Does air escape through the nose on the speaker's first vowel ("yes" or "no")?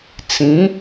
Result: yes